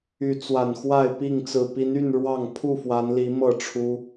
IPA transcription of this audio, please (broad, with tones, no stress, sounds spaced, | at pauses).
y˨˦ t͡s w a˨˩ n x w a˥˨ ɪ̯ p i˥˨ ŋ t͡s ɹ̩˨˩ p i˨˦ n y˥˨ n ɻ w ɑ˥˨ ŋ pʰ u˥˨ f w a˨˦ n l i˨˦ m ɤ˥˨ ʈ͡ʂʰ u˦